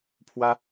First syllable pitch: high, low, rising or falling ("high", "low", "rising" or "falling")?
high